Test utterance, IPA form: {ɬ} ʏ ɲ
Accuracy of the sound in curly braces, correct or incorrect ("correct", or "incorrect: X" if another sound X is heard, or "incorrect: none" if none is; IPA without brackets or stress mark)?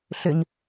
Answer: correct